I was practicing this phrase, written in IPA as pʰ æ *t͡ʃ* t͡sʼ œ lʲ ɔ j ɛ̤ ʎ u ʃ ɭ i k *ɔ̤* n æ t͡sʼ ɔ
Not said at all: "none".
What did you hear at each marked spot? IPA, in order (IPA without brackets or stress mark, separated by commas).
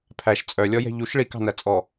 ʃ, ɑ̤